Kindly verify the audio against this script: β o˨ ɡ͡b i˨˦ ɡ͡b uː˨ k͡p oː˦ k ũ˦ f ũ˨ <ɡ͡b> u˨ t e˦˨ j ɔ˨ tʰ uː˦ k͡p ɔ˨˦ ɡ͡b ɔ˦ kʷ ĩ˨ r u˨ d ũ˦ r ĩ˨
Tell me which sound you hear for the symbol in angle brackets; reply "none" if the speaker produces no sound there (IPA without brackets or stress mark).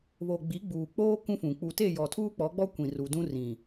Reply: k͡p